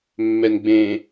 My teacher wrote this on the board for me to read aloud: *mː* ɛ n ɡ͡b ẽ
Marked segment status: correct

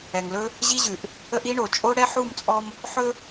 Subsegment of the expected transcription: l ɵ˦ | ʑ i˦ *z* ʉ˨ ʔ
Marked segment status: incorrect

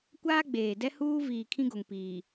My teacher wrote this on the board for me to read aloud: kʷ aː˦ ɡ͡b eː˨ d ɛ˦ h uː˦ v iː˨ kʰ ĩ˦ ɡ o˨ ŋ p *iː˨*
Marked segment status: correct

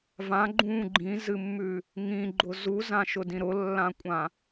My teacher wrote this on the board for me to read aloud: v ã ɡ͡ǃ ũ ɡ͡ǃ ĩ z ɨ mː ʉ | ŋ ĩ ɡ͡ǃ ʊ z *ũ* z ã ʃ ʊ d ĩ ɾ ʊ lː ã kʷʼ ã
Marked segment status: incorrect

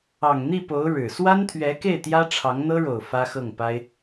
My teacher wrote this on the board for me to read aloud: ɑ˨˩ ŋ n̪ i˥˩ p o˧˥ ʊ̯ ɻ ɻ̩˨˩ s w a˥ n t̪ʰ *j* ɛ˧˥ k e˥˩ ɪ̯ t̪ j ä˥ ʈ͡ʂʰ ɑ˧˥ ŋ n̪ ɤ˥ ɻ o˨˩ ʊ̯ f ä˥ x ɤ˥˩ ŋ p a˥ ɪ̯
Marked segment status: incorrect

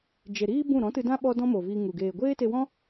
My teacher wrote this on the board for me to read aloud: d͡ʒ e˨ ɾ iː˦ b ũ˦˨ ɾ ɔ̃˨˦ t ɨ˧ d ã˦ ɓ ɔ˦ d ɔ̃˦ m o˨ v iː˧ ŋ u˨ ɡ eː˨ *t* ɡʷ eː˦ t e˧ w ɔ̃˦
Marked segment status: incorrect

